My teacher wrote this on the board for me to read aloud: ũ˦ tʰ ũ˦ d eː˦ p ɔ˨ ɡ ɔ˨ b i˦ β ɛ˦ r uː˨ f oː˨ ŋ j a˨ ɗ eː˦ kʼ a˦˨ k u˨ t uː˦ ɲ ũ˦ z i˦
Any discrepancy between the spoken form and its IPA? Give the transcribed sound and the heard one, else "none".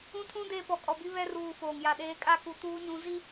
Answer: ɡ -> kʼ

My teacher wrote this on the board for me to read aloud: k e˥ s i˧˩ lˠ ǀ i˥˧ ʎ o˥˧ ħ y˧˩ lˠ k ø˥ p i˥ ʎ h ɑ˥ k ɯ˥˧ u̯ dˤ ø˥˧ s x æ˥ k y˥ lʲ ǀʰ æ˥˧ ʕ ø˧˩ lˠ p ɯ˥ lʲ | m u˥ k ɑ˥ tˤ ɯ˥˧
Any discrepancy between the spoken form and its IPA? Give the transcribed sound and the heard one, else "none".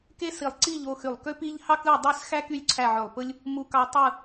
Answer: ħ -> x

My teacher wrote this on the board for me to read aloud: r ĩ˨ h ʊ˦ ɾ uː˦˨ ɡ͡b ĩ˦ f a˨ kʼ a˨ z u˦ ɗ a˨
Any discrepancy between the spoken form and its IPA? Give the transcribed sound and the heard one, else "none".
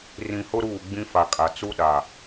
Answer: z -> t͡s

